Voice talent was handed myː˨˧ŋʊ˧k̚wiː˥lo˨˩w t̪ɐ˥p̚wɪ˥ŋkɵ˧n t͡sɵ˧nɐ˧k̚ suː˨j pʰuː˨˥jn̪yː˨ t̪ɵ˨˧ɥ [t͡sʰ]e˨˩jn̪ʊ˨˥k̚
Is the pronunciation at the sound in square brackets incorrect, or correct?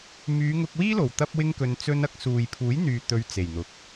incorrect